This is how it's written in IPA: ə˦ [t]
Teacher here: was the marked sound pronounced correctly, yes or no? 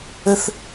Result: no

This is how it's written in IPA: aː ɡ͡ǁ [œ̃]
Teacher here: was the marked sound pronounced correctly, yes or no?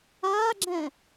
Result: no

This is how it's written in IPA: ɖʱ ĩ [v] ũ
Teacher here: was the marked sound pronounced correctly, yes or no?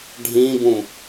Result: no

